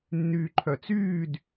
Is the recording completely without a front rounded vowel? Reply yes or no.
no